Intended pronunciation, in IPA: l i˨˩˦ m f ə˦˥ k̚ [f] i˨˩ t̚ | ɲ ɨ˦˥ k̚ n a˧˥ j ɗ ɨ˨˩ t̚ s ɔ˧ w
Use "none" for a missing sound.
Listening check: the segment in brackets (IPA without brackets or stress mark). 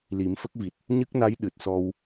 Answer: v